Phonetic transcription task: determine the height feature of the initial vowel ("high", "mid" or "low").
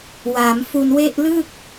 low